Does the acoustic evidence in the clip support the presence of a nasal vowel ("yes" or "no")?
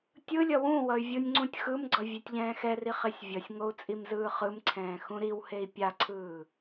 yes